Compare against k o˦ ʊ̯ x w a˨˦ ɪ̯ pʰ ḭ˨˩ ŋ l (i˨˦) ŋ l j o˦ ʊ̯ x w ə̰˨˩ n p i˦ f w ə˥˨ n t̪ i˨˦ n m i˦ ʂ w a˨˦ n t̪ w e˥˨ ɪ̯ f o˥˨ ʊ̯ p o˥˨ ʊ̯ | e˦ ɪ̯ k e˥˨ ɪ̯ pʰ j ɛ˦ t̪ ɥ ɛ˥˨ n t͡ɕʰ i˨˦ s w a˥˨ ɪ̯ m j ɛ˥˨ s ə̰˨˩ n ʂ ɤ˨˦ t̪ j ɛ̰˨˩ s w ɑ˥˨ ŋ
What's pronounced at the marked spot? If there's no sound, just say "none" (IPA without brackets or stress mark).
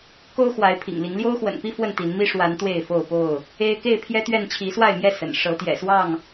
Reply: i˨˦